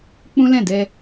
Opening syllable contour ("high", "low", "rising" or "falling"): high